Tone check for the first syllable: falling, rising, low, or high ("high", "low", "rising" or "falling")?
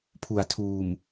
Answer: low